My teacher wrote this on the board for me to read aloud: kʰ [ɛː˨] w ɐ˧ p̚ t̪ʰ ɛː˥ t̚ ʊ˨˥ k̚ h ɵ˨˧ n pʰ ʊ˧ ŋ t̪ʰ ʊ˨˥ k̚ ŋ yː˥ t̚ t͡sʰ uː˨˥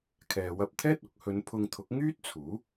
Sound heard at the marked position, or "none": ɛː˨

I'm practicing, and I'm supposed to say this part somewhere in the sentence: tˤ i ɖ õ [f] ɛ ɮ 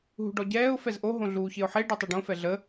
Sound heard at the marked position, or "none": f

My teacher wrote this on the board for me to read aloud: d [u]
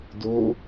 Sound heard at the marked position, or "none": o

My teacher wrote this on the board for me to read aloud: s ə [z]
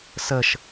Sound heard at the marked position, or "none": ʃ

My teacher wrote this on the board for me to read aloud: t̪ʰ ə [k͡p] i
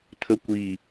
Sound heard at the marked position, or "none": kʷ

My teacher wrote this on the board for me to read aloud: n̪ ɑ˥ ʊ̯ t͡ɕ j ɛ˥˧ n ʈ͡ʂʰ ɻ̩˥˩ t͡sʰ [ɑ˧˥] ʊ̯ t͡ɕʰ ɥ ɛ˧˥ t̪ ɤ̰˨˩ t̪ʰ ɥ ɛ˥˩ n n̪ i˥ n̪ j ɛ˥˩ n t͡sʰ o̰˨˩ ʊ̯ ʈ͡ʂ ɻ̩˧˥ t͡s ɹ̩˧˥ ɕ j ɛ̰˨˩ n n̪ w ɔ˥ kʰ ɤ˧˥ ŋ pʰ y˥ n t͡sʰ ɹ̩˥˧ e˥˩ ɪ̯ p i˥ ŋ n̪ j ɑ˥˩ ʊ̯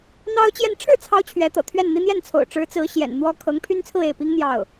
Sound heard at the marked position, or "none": ɑ˧˥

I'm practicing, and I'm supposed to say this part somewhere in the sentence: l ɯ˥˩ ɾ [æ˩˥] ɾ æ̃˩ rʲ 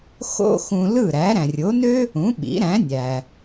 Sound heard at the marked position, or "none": æ˩˥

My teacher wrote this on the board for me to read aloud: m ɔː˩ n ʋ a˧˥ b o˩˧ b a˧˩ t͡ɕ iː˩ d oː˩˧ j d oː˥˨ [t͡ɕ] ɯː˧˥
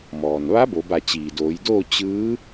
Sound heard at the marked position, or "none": t͡ɕ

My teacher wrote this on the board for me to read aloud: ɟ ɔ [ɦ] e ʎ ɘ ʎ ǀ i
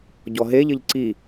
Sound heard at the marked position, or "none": ɦ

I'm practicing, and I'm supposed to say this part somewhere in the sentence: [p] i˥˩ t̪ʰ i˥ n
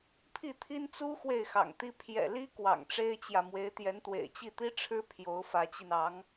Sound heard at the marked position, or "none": pʰ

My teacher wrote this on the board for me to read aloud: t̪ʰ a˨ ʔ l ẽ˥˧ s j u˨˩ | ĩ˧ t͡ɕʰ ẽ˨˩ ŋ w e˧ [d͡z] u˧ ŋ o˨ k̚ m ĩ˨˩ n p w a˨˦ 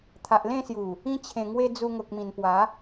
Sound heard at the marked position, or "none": d͡z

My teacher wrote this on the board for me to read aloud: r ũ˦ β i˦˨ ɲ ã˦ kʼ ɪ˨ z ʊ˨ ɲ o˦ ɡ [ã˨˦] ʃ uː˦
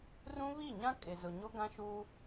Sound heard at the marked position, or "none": ã˦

